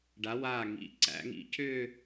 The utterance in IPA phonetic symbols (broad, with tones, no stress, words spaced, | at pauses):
ɖa˩˧waː˧˩ŋḭ˩˧ ǀæ̰˩˧ŋḭ˧cʏː˥˧